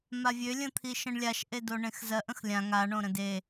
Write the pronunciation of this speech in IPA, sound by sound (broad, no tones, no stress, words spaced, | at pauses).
mavʲølʲə̃t̪ʰi ʃə̃ɳlʲaʃ ʔedoɳẽxzɜʔ ə̃xlʲã ŋaɳõɾə̃ de